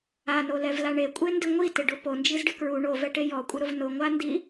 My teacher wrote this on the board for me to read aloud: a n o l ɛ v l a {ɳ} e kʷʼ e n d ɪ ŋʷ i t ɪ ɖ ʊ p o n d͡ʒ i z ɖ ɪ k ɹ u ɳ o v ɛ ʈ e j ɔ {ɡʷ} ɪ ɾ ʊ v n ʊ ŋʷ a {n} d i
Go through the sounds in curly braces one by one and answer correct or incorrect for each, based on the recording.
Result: correct, incorrect: kʷʼ, correct

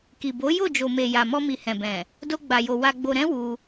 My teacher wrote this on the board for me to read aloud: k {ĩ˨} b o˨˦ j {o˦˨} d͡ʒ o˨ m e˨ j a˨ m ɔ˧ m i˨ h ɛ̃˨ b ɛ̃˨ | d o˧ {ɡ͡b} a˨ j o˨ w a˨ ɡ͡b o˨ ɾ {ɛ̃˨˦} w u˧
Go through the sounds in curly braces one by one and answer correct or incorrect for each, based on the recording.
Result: incorrect: i˨, correct, correct, correct

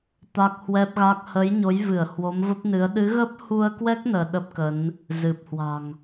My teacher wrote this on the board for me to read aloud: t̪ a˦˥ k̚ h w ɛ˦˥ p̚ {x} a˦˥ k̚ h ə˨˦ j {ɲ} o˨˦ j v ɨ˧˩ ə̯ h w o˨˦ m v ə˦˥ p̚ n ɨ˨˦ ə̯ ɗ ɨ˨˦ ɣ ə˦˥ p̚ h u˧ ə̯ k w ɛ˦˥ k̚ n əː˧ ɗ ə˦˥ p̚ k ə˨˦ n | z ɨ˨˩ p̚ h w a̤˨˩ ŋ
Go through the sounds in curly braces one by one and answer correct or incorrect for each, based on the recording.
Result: incorrect: ɣ, correct

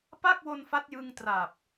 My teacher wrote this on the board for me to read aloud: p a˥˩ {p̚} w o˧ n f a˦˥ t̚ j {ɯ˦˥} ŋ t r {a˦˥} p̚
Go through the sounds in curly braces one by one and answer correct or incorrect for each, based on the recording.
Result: incorrect: k̚, incorrect: ɯ˧, incorrect: a˨˩

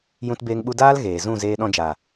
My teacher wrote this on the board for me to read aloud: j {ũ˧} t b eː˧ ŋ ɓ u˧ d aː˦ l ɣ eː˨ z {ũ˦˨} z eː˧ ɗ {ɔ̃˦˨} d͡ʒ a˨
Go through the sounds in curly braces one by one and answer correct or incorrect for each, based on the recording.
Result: correct, correct, incorrect: ɔ̃˧

